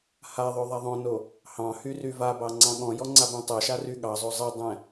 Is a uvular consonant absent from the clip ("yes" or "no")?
yes